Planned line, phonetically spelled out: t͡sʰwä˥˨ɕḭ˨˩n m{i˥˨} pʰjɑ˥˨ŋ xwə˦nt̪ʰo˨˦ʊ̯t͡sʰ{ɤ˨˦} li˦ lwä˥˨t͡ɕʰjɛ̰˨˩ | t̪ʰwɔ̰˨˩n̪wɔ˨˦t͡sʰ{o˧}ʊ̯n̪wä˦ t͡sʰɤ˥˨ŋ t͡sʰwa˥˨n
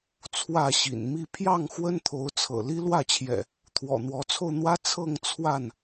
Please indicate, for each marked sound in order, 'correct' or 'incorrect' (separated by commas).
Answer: correct, incorrect, correct